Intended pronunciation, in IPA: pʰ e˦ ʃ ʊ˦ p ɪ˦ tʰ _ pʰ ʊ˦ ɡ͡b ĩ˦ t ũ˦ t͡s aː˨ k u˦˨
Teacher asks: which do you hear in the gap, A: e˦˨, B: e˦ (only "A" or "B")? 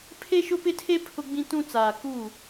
B